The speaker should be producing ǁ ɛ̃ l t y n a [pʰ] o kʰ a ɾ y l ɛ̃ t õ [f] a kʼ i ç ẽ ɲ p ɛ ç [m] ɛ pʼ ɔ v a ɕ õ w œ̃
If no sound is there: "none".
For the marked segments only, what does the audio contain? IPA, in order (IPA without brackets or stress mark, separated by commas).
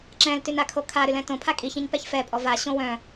kʰ, pʰ, f